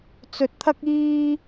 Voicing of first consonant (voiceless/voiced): voiceless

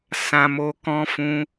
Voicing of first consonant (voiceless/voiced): voiceless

